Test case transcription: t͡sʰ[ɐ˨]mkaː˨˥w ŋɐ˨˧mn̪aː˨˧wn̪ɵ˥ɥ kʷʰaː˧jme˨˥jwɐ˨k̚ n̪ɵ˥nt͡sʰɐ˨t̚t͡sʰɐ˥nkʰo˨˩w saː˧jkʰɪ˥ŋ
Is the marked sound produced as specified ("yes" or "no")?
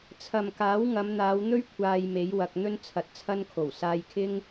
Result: yes